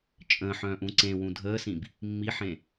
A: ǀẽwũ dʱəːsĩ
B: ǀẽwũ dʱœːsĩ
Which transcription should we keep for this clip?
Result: A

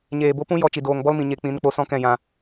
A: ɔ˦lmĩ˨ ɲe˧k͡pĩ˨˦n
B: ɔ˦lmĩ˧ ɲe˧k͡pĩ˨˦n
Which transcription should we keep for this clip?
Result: A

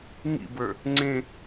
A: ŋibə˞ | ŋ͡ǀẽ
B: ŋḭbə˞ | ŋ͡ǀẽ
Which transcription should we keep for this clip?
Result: B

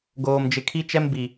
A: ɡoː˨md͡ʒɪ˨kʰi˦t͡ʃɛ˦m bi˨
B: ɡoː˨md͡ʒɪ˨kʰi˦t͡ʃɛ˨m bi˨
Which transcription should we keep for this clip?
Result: A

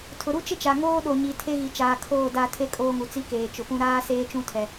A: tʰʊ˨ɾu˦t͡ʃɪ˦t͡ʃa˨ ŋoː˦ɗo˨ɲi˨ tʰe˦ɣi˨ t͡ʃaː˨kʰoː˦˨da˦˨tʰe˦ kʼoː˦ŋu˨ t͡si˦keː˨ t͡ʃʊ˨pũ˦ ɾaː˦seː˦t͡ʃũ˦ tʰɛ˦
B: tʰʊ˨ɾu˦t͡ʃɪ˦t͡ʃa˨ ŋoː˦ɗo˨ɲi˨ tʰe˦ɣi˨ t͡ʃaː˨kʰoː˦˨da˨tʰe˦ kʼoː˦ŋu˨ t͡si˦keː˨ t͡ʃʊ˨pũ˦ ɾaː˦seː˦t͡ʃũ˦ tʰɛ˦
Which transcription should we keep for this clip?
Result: A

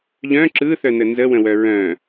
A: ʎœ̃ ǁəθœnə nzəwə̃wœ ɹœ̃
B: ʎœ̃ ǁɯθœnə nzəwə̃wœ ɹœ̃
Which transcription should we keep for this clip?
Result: B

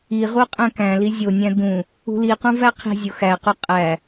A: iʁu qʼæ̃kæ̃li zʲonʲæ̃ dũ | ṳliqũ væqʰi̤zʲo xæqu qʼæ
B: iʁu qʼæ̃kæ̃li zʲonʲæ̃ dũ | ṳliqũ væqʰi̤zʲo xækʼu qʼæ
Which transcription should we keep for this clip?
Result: A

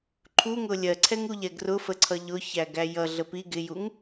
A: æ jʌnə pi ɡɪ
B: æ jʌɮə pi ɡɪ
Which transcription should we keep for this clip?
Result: B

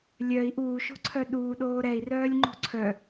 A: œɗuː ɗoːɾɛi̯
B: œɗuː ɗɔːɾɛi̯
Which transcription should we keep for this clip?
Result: A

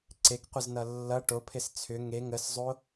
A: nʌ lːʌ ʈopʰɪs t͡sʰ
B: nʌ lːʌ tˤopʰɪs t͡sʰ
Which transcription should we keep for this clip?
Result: A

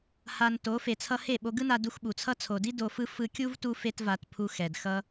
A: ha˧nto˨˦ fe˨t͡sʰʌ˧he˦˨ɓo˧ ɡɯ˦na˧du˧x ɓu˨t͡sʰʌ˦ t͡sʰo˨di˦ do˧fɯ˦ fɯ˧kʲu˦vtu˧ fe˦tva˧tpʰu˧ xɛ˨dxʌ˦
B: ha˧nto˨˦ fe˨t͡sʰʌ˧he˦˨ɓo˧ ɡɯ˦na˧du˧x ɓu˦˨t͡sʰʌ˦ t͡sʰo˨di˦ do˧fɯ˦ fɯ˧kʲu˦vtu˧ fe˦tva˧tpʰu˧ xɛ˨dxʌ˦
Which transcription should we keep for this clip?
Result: A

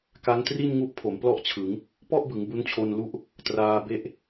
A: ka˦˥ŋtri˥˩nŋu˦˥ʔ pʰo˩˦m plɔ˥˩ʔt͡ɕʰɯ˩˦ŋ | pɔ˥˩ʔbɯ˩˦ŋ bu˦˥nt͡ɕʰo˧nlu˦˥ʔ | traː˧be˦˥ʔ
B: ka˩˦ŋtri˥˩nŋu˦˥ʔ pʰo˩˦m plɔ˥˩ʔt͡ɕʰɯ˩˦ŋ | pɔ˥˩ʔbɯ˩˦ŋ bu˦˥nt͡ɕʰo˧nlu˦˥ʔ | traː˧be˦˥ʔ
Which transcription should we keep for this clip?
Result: A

